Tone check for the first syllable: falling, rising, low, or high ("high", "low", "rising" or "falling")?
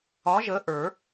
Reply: rising